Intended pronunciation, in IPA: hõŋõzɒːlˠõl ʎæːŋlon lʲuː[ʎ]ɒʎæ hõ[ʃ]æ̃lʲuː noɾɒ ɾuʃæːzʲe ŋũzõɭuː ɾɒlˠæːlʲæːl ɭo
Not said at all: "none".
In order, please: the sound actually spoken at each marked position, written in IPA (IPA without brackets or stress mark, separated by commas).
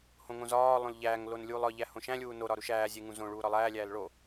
lˠ, ʃ